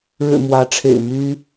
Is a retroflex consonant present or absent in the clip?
present